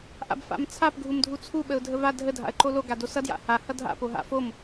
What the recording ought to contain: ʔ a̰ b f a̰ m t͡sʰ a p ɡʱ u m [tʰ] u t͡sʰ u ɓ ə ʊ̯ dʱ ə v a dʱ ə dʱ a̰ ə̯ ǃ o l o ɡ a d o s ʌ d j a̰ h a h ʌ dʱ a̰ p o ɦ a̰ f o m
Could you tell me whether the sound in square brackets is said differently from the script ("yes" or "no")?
yes